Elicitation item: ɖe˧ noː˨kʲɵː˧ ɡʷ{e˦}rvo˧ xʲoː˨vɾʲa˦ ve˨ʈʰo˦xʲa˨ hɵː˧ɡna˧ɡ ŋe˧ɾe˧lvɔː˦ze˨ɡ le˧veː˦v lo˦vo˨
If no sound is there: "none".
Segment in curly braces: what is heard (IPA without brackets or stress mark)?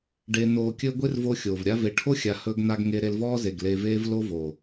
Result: e˦